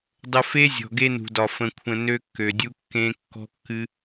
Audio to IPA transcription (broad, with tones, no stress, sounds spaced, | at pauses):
dˤ ə˦ f e˦ zʲ ɔ̤˨ ɡ e˦ n ṳ˨ d ɒ˨ f ə̃˨ kʷʰ ə̃˨ n ø˦ kː ø˨ dʲ u˦ kː ẽ˦ kː ɔ̤˦ kː ɨ˦